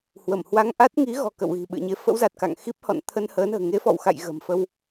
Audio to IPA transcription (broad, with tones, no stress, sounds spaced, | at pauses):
h w ə˧˩ m h w a˧ ŋ ʔ a˦˥ t̚ ŋ i˨˦ ɣ ɔ̤˨˩ k ə̰˧˨ w ɣ i̤˨˩ ɓ ɨ̰˧˨ ə̯ ɲ e˧ f ə̰˧˥ w z a˨˩ t̚ k a̰˧˨ ŋ x i˦˥ p̚ h ɔ̰˧˨ n t̪ʰ ə˧ n h əː˨˦ n ə̤ː˨˩ ŋ e˨˦ f ɔ̰˧˨ w x a̰˧˨ j ɣ ə̤˨˩ m f ə˧ w